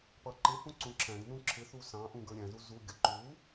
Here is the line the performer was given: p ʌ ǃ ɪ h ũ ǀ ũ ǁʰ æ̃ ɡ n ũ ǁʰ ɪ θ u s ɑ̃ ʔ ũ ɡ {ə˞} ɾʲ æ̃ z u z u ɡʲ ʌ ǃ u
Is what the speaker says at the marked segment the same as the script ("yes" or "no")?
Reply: yes